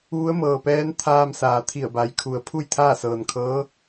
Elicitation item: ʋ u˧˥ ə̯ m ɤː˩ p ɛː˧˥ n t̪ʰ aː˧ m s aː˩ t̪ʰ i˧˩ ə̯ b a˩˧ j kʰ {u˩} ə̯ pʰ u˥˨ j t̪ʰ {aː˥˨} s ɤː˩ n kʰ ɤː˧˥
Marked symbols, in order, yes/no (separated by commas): yes, yes